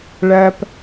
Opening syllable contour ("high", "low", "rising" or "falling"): high